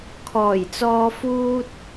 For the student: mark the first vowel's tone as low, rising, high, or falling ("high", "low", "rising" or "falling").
low